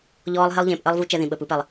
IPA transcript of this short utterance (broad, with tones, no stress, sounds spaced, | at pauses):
ʎ ɔː˨ lˠ ɦ e˦ lˠ ʎ ẽː˨ p ʔ əː˦ lˠ v u˦ t͡ʃ ɛ˦ ð ĩ˨ ɓ əː˨ p ɯ˨ p ɛ˨ lˠ